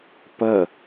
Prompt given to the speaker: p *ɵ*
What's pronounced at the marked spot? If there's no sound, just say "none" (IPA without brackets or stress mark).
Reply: ə